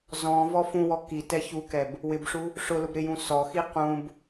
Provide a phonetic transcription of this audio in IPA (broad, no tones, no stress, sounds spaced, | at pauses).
z ɔ̃ v ɔ f ũ w ɔ k i t ɛ ç u k ɛ b | w ɪ b ʂ u | ʂ ʊ l ʊ b ɾ ɪ j ũ s ɔ x i q ũ b